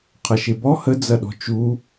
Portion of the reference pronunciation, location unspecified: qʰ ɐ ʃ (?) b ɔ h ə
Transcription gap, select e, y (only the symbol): e